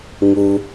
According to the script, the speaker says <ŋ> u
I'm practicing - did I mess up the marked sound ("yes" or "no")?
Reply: no